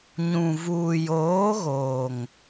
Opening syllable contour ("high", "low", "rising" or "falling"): low